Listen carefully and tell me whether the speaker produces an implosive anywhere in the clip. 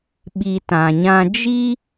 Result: yes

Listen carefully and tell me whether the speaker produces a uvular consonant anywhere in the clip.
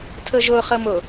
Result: yes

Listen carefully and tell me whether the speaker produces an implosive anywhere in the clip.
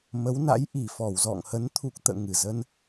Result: no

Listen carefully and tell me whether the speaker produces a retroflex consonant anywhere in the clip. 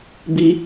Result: no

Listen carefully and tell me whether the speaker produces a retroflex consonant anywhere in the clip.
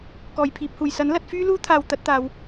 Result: no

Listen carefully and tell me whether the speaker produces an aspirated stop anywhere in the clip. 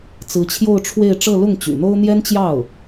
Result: yes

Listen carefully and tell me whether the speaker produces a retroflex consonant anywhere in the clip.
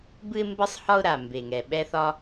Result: no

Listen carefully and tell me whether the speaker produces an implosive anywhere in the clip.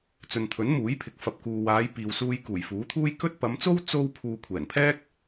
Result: no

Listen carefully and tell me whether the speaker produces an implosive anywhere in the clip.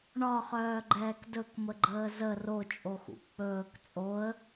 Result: no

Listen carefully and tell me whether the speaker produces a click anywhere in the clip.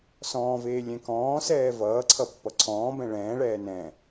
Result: yes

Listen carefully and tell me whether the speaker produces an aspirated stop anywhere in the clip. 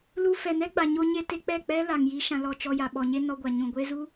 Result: no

